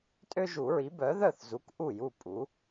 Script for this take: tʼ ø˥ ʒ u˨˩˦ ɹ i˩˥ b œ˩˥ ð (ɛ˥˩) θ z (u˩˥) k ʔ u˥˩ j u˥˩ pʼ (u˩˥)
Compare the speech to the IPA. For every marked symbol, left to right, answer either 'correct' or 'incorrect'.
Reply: incorrect, correct, correct

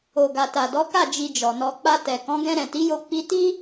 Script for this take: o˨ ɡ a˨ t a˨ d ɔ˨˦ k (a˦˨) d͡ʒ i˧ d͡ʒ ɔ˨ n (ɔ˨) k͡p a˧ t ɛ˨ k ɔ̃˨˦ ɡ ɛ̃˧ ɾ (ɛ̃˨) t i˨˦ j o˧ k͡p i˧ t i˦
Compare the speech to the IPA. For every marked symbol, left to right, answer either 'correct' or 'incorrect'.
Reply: correct, incorrect, correct

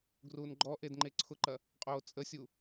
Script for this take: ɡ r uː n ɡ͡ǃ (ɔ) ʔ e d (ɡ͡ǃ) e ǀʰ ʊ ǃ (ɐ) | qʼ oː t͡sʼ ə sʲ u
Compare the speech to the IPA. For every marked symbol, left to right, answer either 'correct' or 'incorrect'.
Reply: correct, incorrect, correct

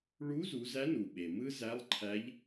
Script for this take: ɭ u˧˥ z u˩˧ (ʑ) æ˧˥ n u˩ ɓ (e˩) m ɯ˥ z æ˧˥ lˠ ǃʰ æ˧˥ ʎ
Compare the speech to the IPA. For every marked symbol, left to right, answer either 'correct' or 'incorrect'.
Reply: incorrect, correct

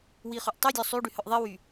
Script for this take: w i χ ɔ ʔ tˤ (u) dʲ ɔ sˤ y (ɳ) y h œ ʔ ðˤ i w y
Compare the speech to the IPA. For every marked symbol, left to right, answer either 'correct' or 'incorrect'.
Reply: incorrect, incorrect

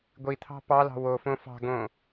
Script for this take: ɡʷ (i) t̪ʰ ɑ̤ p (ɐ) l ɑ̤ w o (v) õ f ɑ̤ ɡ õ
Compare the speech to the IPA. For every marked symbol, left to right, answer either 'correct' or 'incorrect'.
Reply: correct, incorrect, incorrect

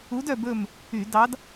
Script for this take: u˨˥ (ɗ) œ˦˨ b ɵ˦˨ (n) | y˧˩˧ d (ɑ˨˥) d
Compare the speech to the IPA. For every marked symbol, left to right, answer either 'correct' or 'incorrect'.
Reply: incorrect, incorrect, correct

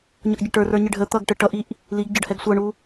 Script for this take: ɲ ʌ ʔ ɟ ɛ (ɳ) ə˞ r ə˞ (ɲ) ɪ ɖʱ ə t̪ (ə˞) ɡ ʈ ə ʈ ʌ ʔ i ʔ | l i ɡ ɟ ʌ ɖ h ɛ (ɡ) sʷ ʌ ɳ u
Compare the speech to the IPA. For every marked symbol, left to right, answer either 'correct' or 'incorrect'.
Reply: incorrect, correct, incorrect, correct

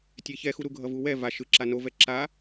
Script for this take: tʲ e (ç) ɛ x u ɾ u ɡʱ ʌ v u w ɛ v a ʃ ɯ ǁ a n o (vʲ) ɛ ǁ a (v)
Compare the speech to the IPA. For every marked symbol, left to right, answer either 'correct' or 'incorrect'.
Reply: correct, incorrect, incorrect

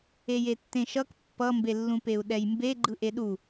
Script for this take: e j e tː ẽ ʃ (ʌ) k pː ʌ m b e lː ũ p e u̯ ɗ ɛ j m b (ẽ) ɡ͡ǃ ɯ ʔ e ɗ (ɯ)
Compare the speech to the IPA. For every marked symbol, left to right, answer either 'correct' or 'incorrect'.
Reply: correct, incorrect, incorrect

